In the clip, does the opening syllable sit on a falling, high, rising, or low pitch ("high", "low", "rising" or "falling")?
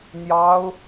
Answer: high